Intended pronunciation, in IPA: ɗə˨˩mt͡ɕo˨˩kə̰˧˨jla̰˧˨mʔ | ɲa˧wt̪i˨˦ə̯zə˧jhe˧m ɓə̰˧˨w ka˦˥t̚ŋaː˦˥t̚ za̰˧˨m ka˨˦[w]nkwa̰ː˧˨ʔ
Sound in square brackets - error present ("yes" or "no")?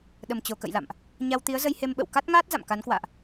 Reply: yes